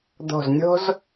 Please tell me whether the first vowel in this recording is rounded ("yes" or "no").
yes